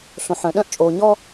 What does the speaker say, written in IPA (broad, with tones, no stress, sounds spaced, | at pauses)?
ɬ õ˨ ħ œ̃˨ ɗ œ̃˦ ʔ t͡ʃʼ o˨ ɲ ɔ˦